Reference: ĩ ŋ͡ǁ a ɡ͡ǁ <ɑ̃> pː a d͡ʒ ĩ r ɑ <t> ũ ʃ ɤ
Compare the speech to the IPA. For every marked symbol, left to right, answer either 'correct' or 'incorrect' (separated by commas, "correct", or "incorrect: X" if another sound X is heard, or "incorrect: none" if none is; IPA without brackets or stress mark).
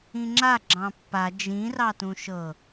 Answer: correct, correct